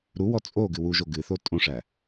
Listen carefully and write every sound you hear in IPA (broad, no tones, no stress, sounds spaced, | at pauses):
ɾ u w ɔ t͡sʼ o ɡ ɨ w u ʒ o ɡ ɨ θ o tʼ õ ʂ æ